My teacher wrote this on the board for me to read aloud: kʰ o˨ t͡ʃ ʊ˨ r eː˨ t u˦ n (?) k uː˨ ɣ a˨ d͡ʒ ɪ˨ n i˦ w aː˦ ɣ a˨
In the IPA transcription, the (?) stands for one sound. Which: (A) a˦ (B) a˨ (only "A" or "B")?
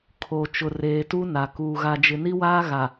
B